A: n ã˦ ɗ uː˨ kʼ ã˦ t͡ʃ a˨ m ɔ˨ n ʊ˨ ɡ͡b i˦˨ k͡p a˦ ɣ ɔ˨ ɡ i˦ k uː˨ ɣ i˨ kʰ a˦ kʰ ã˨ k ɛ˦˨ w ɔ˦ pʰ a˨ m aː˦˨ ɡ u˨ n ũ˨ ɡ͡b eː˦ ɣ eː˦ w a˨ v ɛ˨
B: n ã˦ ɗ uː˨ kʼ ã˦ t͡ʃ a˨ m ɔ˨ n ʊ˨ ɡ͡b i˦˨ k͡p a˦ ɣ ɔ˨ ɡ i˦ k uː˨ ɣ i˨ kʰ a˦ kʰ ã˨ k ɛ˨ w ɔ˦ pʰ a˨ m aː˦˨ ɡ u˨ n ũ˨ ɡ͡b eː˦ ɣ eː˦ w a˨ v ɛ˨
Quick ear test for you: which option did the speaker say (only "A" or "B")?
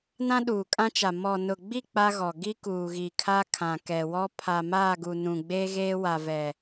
B